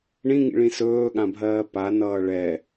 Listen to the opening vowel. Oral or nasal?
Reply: nasal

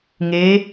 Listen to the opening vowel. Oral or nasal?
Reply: oral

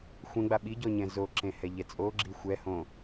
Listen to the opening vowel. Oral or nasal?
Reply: nasal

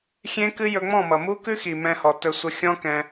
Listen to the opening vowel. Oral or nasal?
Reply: nasal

